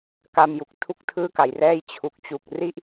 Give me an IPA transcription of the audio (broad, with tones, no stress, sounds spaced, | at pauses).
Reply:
k a˧ m j u˨˩ k̚ tʰ u˥˩ k̚ tʰ ɯː˥˩ k a˨˩ j r ɛː˥˩ j t͡ɕʰ u˨˩ k̚ t͡ɕ u˨˩ k̚ r i˥˩ ʔ